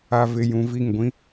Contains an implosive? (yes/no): no